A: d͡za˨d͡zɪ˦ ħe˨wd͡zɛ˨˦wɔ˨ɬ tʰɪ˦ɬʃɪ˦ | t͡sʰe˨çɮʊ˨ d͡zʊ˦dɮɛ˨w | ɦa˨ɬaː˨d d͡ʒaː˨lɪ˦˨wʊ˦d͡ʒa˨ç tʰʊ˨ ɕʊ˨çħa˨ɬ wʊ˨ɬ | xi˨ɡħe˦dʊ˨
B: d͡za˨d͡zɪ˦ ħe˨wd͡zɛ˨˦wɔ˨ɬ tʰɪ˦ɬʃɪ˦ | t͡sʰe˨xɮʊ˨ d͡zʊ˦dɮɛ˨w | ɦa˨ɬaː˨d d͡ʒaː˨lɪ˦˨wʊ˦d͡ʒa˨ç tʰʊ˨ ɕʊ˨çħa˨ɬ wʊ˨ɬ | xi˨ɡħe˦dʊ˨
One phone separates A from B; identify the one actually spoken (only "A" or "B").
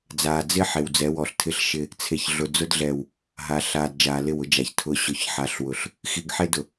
A